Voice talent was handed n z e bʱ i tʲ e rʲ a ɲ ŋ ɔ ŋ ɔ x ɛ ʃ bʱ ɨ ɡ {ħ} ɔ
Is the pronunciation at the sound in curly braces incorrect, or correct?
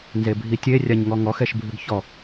incorrect